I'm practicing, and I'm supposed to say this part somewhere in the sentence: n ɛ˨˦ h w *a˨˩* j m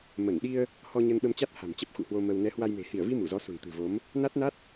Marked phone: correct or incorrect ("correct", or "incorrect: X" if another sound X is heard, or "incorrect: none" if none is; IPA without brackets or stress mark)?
incorrect: a˧